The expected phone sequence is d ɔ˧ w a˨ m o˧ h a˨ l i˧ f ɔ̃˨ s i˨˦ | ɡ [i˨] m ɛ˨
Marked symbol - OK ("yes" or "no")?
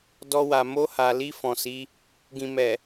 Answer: no